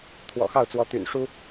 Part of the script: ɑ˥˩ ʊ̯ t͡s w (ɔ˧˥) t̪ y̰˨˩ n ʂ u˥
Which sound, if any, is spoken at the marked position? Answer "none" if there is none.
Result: ɔ˧˥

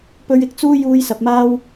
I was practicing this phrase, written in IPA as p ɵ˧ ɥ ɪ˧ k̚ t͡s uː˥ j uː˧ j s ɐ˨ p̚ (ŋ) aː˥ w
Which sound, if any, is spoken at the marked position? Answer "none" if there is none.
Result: m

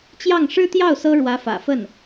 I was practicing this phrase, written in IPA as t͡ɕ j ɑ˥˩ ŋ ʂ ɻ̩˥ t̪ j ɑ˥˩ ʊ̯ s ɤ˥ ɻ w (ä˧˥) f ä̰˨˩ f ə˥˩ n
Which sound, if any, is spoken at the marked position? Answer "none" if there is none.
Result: ä˧˥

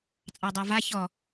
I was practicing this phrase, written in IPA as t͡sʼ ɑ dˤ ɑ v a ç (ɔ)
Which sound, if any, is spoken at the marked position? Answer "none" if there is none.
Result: ɔ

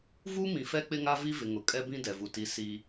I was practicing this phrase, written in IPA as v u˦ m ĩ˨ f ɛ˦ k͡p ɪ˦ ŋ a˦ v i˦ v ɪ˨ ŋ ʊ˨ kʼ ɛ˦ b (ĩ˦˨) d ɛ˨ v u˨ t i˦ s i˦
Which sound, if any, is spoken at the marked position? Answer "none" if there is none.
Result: ĩ˦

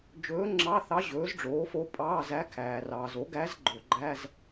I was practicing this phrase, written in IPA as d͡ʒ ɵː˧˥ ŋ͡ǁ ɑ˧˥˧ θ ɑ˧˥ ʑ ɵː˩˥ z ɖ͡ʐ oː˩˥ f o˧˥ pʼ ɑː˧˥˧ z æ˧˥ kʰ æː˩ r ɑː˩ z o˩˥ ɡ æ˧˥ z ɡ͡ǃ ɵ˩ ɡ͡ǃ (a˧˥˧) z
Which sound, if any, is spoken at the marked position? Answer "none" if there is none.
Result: æ˧˥˧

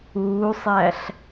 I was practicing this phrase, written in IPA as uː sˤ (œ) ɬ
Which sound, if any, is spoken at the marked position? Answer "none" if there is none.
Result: æ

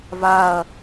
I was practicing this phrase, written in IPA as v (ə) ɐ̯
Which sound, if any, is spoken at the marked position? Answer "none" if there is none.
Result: a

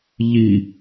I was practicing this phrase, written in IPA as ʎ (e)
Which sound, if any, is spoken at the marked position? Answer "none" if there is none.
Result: i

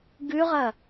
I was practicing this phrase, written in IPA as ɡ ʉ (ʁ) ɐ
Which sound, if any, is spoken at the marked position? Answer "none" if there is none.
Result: ʁ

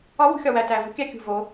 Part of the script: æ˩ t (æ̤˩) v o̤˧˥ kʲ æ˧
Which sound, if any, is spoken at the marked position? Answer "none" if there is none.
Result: æ˩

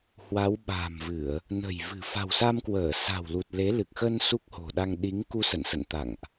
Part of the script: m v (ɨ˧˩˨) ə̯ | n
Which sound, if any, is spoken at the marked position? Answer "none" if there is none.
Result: ɨ˧˩˨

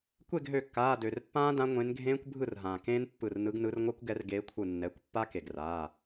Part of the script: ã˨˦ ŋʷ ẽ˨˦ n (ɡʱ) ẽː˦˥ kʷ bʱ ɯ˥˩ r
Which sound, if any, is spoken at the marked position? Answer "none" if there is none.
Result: ɡʱ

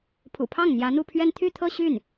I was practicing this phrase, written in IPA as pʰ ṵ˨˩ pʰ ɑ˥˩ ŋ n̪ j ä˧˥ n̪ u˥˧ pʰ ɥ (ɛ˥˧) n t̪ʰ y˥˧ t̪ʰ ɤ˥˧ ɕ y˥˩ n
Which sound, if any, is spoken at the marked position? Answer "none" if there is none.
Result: ɛ˥˧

